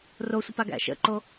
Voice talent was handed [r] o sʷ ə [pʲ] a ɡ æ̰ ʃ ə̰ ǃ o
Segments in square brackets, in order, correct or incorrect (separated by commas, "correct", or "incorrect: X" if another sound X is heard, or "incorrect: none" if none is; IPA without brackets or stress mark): correct, incorrect: p